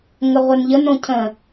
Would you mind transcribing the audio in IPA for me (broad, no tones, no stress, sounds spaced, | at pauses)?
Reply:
ŋ ə ʁʷ ɛ n ʎ ə n õ cʰ ə̃